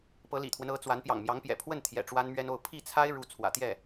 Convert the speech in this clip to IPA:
pɤ˧˥lḭ˨˩t̪ʰwə˦n ɤ˧˥t͡swa˧˥n pjɑ̰˨˩ŋmjɑ˧˥ŋpjɛ̰˨˩ pʰwə˥˩n t̪ʰjɛ̰˨˩ʈ͡ʂwa˥nmɥɛ˥no˥˧ʊ̯ pʰi˥˩t͡sʰa˥ɪ̯ ɻu˥ t͡sʰwä̰˨˩t̪jɛ˥˩

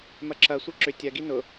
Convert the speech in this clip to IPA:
mɐǁɐ sʷeǁʏ tʲɐ ɡinʊ

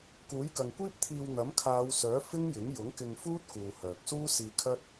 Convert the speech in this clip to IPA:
kuː˨˥jkɐ˨ŋkʷiː˥p̚t̪ʰiː˧w n̪ɐ˨˥mkʰaː˨˧wsœː˨˥ fɪ˥ŋjɪ˨˥ŋ jʊ˨˥ŋkɪ˧ŋfuː˥t̚kuː˨ hœː˨k̚suː˥ siː˧kʰɐ˥t̚

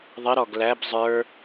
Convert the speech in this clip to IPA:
ðˤɪ ɾɔɡlæb zˤə˞

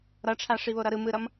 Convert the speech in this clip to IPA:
ɾʌʈ͡ʂʰa ʂiβoɾʌɾɯ mɯɾʌm

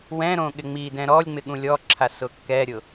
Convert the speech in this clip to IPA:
wɛ̃ ɾõɠɪŋ͡midɛ̃ ɾɔlʲŋ͡mɪ ɠũlʲɔǁʰa sʊkːɛɾʲʊ

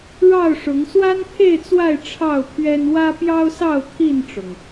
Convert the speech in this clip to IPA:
ɻɑ˥˨ʊ̯ʂʊ˨˦ŋ swa˦npʰe˥˨ɪ̯t͡swa˥˨ɪ̯ ʈ͡ʂʰɑ˥˨ʊ̯pʰɥɛ˦n wä˦pjɑ˦ʊ̯sɑ˥˨ʊ̯ t̪ʰi˥˨nʈ͡ʂʊ˩ŋ

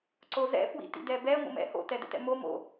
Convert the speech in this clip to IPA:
ǀozɛ̰ fwḭtḭdɛbɛ ŋʷə̰mɛ̰ho̰ tɛdɛ̰tɛ̰mo mo̰

